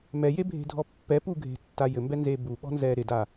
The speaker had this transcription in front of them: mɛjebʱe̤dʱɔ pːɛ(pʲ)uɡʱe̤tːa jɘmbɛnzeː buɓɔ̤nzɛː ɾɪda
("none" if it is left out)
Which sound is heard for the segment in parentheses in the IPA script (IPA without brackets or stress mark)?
p